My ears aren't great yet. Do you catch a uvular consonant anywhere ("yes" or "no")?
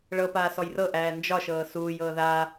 no